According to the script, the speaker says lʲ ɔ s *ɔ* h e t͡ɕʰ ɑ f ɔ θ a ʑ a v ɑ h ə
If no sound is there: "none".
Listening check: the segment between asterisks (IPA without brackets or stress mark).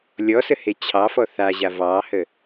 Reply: ə